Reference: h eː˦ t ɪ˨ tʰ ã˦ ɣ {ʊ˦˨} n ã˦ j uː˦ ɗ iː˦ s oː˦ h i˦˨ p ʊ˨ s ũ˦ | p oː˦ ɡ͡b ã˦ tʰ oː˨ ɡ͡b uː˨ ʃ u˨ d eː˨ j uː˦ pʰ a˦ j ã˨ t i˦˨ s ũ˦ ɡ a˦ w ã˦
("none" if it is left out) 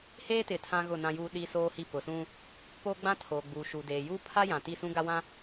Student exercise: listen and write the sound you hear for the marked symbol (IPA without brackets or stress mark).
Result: ʊ˦˨